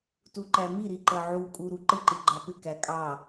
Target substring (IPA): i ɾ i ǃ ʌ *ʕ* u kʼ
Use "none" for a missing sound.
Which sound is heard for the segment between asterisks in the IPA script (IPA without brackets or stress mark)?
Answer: ʕ